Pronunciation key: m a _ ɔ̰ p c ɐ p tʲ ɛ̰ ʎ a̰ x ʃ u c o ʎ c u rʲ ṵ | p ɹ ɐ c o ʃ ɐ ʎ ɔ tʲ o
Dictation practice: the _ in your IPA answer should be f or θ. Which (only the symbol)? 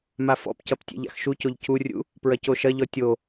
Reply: f